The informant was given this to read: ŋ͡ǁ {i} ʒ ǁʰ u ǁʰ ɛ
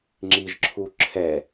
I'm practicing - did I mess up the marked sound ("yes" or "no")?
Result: no